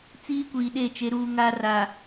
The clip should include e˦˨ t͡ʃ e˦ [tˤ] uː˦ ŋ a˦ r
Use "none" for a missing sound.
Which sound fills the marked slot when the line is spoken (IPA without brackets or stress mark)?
ɾ